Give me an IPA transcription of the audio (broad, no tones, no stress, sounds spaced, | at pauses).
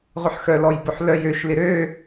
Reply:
ʁʷ ɪ ħ x œ l ɔ j b ʊ ħ l œ j ø ʃ l ɪ ɾ ø